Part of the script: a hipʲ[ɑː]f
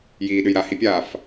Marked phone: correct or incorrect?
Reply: incorrect